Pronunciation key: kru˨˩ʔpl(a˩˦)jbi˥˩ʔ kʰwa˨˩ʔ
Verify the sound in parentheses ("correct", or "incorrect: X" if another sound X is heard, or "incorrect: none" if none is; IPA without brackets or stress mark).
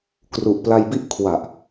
incorrect: a˧